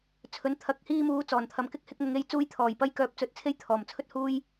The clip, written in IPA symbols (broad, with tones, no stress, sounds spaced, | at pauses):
t͡sʰ ɵ˨˥ n t̪ʰ ɐ˨˥ k̚ h iː˧ m uː˨˥ t͡s ɔː˨˩ n t̪ʰ ɐ˨ m k ɪ˥ k̚ h ɪ˧ k̚ m ʊ˨˧ ŋ e˧ j t͡s uː˧ j t̪ʰ ɔː˨˩ j p ɐ˧ j k œː˨˥ p̚ t͡s ɵ˨ t̚ t͡sʰ e˥ j t̪ʰ ɔː˨˩ m t͡sʰ ɵ˥ t̚ h uː˥ j